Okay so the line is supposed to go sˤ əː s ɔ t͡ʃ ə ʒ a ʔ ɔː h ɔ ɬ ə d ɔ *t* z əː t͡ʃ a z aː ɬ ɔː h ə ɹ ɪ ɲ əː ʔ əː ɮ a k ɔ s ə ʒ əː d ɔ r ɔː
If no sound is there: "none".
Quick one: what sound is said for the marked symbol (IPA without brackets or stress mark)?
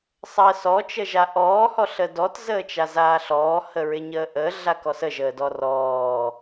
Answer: t